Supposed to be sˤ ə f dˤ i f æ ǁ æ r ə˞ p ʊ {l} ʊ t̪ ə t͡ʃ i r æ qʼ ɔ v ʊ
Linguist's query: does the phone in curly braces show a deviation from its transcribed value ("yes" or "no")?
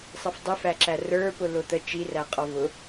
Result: no